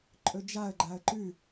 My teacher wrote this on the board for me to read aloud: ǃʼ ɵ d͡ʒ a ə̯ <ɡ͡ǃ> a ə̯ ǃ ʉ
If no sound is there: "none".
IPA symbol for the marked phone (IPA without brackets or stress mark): ɡ͡ǃ